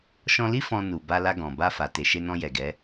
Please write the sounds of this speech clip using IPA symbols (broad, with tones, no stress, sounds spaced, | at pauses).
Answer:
ʃ ɔ̃˧ l i˦ f ɔ̃˧ n u˨ b a˧ l a˧ ɡ ɔ̃˨ b a˧ f a˨ t e˨ ʃ e˧ n ɔ̃˧ j ɛ˨ ɡ ɛ˨˦